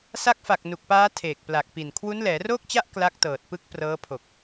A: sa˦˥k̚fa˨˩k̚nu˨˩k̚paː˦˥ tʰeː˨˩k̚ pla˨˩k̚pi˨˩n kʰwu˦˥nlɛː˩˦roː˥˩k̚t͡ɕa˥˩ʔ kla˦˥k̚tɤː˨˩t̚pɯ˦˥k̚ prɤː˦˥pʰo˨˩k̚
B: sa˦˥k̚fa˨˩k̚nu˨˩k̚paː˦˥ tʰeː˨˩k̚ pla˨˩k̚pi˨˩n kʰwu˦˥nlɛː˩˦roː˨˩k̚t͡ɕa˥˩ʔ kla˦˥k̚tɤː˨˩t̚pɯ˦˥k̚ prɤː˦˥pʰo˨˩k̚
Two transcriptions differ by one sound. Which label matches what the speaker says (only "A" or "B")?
A